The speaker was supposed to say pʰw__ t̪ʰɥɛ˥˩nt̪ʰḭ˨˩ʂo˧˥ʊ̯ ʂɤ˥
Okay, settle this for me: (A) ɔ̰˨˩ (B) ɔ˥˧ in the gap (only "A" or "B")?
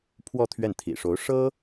B